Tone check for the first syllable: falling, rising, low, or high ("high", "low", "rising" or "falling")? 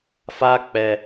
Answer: high